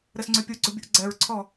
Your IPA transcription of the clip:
ɾɘsŋ͡ǀʏpʲuɡ͡ǀo bʲuʔɡ͡ǀɛɹǀʰɔ

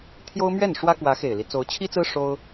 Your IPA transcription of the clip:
t̪ʰjo˥ʊ̯mɥɛ˥˩n ʂwä˥kwä˧˥ xe˨˩ɪ̯li˦ t͡so˧˥ʊ̯t͡ɕʰi˥t͡sɹ̩˥ ʂo˥ʊ̯

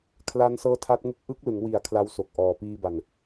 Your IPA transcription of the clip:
kʰla˦˥nsɤː˦˥tʰa˦˥t̚ŋɯ˥˩k̚ ʔɯ˦˥k̚ lɯ˩˦ŋwi˩˦a̯ kʰla˦˥wso˨˩k̚ ʔɔː˨˩ piː˧ba˨˩n

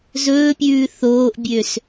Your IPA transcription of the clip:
zɵːpʲʉː θoːʔbʲøs

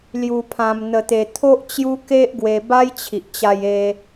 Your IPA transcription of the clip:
lju˧pʰã˧mn̪ə˧ t̪e˧t̪ʰo˦ʔ t͡ɕju˦ke˦ʔɡwe˧ ba˦jt͡ɕʰi˨ʔt͡ɕa˧j e˦

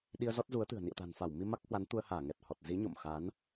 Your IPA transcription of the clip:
ɗi˧ə̯zɔ˦˥t̚zu˨˦ə̯t̪ɨ̤˨˩ə̯ nḭ˧˨ə̯t̪a̤˨˩nfa˧˩w mi˧ma˦˥k̚hwa˨˦n t̪u˧ə̯haː˧˩ŋɛ˨˩t̚hɔ˨˩t̚ zi˨˦ɲo̰˧˨mxa˨˦n

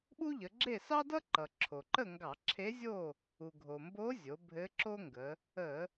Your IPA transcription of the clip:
ɓu˥ʎə˩˧ɡ͡ǁe˥˨ sɑ˥dʌ˥ǃʌ˩ ǁʰo˩ǃə˥˨ ŋɡɑ˧˩˧ǁʰe˧˥zʲo˥˨ | u˩ɡʱo˩mbo˧˥ zʲo˩˧ bʱɘ˧˥ǁo˥ŋɡə˩˧ | ə˧˩˧

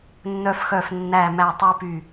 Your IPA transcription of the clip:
nːœ˦fxœ˦˨f nːæ˦˨mæ˦˨ tˤu˦py˦˨

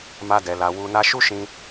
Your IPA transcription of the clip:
ma˧dɛ˨la˨ wu˨na˧ ʃu˦ ʃĩ˧

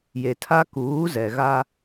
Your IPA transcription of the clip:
je˨tʰa˦ kuː˨˦ zɛ˨ɣa˦

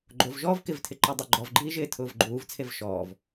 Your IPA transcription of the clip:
ɡ͡ǃovʒɔːv kɪvtʰɪǃa dˤuɡ͡ǃɔvɡ͡ǃiːʒɪː tʰʊːvɡ͡ǃuːvt͡sʰev ʃɔːv

